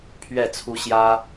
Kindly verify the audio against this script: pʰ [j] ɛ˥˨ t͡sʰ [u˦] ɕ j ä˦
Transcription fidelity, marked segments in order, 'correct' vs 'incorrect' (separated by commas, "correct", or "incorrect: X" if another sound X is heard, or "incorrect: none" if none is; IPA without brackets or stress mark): incorrect: ɥ, correct